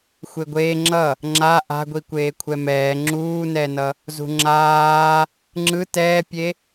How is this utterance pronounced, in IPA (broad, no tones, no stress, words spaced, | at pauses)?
xʷeɡʷeː ŋ͡ǁʌ | ŋ͡ǁa ʔa̤ɡʷi kʷeːkʷʰɛmɛː ŋ͡ǁuːnɛnʌ | zṳŋ͡ǁaː | ŋ͡ǁɯ tɛːpʲe